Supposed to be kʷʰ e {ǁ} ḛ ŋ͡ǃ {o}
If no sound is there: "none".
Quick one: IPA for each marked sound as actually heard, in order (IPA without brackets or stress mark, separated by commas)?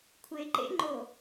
ǃ, o